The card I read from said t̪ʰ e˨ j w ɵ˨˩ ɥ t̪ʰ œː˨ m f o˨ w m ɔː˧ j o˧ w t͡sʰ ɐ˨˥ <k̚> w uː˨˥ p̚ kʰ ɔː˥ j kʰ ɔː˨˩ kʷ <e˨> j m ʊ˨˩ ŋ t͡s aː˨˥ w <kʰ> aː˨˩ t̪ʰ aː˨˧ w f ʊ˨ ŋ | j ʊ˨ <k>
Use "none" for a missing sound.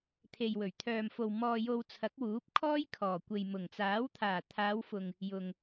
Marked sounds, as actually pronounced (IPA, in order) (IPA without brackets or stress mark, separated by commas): k̚, e˨, t̪ʰ, ŋ